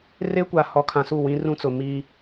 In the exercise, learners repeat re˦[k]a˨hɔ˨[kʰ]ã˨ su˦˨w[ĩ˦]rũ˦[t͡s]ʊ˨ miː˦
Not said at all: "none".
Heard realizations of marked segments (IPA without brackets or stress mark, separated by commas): kʷ, kʰ, ĩ˦, t͡s